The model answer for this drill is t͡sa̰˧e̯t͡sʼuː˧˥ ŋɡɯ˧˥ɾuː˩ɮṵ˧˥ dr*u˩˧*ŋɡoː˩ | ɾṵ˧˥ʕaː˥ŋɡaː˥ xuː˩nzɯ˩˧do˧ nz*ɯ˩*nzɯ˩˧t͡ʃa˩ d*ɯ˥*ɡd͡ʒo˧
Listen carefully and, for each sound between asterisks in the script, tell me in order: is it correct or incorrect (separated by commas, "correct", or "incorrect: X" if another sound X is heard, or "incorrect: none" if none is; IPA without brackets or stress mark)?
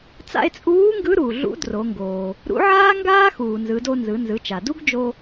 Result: incorrect: o˩˧, incorrect: ɯ˩˧, incorrect: u˥